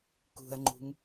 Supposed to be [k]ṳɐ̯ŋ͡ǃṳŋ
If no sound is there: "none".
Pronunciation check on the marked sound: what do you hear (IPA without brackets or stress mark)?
k